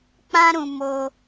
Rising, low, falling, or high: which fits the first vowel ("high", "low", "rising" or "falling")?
high